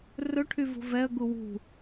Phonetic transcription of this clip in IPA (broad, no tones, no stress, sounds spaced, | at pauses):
r ɵ ʈʰ y v ṳ v ɛ ə̯ ɡ u w ṳ